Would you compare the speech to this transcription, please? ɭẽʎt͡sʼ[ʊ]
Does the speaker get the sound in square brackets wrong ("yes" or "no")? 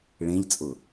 no